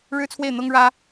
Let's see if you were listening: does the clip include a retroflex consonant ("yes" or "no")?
yes